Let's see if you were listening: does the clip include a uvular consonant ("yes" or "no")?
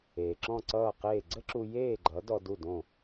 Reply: yes